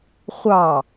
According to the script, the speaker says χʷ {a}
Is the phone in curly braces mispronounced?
yes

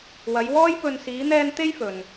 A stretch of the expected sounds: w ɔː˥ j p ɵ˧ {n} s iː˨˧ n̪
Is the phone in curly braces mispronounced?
no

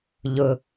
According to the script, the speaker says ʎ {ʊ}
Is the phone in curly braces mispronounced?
no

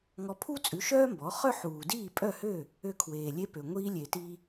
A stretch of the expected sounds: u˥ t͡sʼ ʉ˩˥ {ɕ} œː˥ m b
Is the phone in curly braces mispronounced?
yes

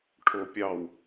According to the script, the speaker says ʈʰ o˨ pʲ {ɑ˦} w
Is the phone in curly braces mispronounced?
yes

